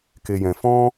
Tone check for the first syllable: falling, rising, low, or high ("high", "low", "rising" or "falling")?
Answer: low